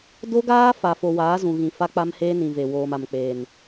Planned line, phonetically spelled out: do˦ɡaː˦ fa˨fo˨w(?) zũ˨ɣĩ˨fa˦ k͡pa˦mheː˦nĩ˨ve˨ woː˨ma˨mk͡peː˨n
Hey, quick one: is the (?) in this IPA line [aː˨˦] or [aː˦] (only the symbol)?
aː˨˦